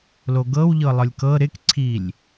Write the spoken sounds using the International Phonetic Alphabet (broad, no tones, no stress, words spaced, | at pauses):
loɡɤwʎɤ lˠɤlʲkɤ ɾɪkǀʰilʲ